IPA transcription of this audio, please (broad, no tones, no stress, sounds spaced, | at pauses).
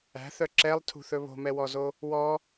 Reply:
æ̤ θ œ ǁ ɛ lˠ tʰ ṳ θ ɵ β o̤ m ɛ w ɔ z o | w ɔ